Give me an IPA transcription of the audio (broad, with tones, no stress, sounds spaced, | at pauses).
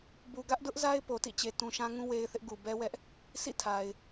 b u˨ ɡ ä˦ ʔ d ʊ˦ ʔ z a˦ ɪ̯ p o˨ t ḭ˦˨ t͡ɕ e˨ t ũ˨ ʃ ã˦ ŋ ũ˦ w e˦ ɪ̯ θ ɪ˦ ʔ ɡ u˨ b ɛ˦ w ɛ˦ ʔ | s ḭ˦˨ tʰ a˨ ɪ̯